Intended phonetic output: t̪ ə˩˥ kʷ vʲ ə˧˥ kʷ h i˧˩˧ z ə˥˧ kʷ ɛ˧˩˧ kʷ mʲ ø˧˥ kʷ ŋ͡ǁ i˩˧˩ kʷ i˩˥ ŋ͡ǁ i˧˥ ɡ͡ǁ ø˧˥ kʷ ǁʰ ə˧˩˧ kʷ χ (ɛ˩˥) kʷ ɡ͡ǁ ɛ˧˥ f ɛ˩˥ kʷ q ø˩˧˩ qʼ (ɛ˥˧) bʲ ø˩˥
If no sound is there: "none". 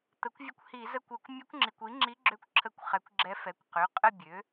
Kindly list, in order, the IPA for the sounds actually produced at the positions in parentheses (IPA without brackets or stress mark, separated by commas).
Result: ɛ˩˥, ə˥˧